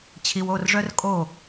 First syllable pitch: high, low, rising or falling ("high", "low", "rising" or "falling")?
low